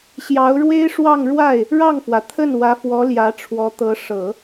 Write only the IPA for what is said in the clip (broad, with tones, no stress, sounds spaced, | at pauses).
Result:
ɕ j ɑ˧˥ ʊ̯ ɻ w e˥ ɪ̯ ʂ w ɑ˥˧ ŋ ɻ w a˥˩ ɪ̯ | ɻ ɑ˥˩ ŋ f w ä˩ t̪ʰ ə˥˩ n w ä˧˥ f w ɔ˧˥ l j ä˧˥ ʈ͡ʂʰ w ɔ˧˥ t̪ ɤ˧˥ ʂ ɤ˨˩˦